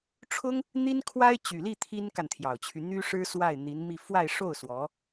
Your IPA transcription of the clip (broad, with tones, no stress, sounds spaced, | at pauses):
ʈ͡ʂʰ ʊ˥ ŋ | n̪ i˥ n kʰ w a˥ ɪ̯ t͡ɕ y˨˩ l i˥˩ t̪ʰ i˥ n k a˨ n t̪ʰ j ɑ˨˩ ʊ̯ t͡ɕʰ y˦ n̪ y˥ ʂ ɻ̩˥ s w a˥˩ ɪ̯ n̪ i˧˥ n m i˥˧ f w a˥˧ ɪ̯ ʂ o˥˩ ʊ̯ s w ɔ˧˥